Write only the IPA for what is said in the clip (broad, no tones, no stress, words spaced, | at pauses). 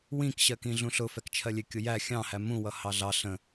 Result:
wĩkɕɜkĩ ɮũɬʊfɛk t͡ʃʰɜlʲɪkʲʊ jæ xʲɑ̃hæ mũwʌ hɑɮɑ ɬə̃